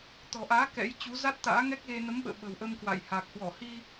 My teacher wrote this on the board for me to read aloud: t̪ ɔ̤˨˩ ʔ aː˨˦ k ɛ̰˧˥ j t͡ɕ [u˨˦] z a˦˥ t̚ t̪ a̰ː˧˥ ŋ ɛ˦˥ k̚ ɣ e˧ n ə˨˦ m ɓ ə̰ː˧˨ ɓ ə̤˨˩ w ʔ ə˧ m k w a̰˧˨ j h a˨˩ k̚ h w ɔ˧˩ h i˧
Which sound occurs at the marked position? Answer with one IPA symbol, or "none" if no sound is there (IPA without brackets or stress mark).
u˨˦